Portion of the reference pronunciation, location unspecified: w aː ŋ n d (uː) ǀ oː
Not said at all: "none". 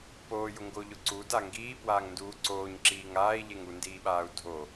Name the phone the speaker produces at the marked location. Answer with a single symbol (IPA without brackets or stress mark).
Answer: uː